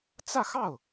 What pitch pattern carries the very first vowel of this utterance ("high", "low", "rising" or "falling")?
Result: falling